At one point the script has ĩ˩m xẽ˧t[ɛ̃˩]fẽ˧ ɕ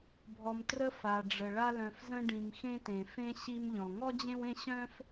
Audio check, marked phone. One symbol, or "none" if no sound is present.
ẽ˩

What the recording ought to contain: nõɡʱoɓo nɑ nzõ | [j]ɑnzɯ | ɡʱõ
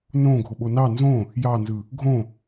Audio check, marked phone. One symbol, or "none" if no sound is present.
j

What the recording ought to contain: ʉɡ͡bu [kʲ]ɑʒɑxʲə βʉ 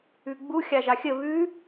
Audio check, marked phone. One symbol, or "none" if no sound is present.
xʲ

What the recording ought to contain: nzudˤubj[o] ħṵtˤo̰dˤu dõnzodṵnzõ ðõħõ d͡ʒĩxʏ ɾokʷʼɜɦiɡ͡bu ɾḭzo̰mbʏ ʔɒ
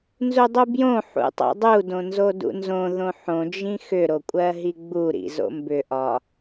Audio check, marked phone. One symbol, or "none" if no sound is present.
õ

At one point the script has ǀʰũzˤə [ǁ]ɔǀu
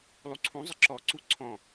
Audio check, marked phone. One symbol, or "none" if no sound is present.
ǁ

